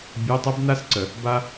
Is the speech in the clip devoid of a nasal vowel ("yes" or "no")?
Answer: yes